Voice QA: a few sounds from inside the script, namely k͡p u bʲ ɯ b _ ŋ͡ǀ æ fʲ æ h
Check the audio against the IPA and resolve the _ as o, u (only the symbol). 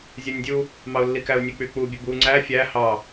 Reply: u